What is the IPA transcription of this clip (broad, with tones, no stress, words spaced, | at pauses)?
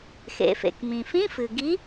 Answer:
xḛ˩fḛ˩k mĩ˩fĩ˧˥˧ fɨ˩ɡi˨˥